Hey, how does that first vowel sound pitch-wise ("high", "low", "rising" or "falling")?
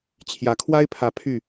rising